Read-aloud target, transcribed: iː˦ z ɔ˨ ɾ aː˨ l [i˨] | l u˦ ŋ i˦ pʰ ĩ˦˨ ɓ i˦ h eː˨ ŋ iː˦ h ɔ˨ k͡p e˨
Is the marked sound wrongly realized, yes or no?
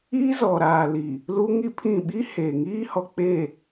no